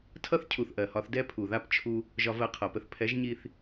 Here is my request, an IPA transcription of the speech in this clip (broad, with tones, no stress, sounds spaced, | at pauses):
tʰ ʌ˦ θ cʰ u˨ θ ʔ ɜ˨ h ɒ˧ θ d ɛ˦ pʰ u˨ ð a˦ p t͡ʃʰ u˧ | ʒ ɒ˧ v ɜ˧ qʰ ʌ˨ p ə˧ θ pʰ ɛ˨˦ ʒ ɲ i˧ θ